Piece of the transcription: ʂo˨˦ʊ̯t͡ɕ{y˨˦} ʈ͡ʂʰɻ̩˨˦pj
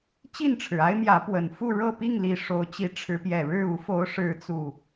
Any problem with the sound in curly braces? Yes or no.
yes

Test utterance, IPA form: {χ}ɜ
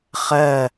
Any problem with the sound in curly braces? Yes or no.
no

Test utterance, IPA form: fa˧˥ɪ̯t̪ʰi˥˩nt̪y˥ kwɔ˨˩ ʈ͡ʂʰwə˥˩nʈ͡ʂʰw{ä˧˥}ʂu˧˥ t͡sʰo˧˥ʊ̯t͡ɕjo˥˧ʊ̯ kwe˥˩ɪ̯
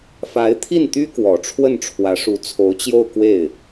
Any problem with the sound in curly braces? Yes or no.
no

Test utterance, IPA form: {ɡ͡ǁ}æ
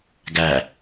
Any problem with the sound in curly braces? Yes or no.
yes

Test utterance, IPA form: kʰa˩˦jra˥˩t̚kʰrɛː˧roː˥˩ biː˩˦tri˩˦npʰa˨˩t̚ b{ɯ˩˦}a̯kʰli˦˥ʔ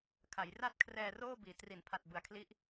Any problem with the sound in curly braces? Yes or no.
no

